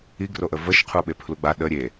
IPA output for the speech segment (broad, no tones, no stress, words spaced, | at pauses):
iɡroʔə vəʃ qʰuɓepʰluɡ͡ba ɗə ɾʲe